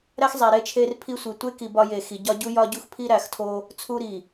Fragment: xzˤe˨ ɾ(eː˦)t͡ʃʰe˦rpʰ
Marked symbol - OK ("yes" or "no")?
no